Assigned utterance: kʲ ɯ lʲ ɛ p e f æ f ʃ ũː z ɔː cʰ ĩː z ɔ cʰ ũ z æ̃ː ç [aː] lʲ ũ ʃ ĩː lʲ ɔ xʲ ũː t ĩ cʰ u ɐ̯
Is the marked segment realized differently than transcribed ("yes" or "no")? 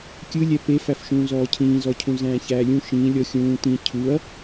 yes